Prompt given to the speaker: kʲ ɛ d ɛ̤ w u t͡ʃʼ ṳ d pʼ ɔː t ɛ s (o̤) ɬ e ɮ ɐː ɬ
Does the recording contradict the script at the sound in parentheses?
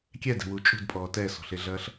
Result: yes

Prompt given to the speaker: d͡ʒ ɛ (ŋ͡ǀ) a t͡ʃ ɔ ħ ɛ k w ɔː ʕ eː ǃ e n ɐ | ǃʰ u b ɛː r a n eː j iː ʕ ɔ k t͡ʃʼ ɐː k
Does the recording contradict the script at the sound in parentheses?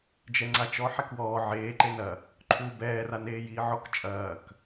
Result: no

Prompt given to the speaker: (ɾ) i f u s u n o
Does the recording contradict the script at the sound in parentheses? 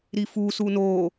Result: no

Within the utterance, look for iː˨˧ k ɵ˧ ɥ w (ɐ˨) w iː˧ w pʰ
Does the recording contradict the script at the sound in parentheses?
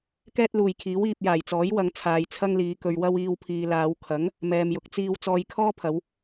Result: yes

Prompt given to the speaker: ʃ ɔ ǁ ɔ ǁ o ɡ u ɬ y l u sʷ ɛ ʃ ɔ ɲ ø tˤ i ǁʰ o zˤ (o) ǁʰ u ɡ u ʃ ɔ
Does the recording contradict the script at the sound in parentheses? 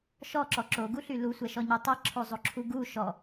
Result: no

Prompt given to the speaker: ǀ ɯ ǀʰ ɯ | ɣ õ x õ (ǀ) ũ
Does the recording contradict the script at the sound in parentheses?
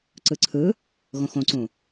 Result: no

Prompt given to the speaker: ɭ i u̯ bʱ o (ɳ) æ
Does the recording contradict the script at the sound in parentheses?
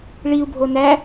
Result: yes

